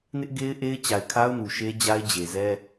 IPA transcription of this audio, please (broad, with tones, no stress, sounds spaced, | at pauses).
n ɪ˦ ʔ ɡ e˦ ɪ̯ ʔ e˦ ɪ̯ t͡ɕ a˨ ɪ̯ kʰ a˦ ʊ̯ n u˨ ʃ e˦ d͡ʑ a˦ ɪ̯ d͡ʑ e˨ z ɛ˦